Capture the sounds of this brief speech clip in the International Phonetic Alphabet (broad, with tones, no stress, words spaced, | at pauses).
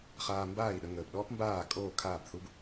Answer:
χaː˧mbaː˥˩i̯ɗə˧ ŋəː˩bɗɔː˥pmbaː˥˩ kʼoː˥˩kʰaː˥˩bθu˥b